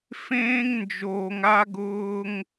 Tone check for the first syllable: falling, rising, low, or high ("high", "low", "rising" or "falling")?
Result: high